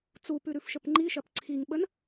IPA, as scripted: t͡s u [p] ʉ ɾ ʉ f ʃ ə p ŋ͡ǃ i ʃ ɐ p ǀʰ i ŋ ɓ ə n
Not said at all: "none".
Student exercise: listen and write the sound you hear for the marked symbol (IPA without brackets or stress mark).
p